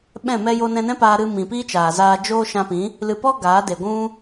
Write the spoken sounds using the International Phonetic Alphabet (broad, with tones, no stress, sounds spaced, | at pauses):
ɓ ɛ̃˦˨ m ɛ˦ j o˧ n ɛ̃˧ n ɛ̃˦ p aː˧ ɾ ɨ˧ m ĩ˨ p i˦ t͡ʃ aː˨ z aː˧ d͡ʒ oː˦ ʃ ã˧ p ĩ˨˦ | l ɨ˨ p ɔ˦ ɡ aː˨˦ d e˨ ɡʷ ũ˦